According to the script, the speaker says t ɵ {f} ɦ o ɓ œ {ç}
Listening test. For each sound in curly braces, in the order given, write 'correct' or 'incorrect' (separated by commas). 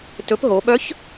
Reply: incorrect, correct